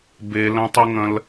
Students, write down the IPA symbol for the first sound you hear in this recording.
b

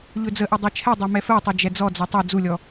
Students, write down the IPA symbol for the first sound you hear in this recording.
ʎ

